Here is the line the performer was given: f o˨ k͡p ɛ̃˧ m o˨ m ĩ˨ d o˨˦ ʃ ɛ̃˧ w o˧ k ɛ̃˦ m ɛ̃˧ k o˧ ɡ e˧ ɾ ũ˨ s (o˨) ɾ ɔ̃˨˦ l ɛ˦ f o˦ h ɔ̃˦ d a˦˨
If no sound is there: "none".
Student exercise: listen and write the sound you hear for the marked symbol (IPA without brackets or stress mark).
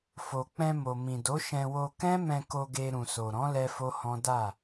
o˨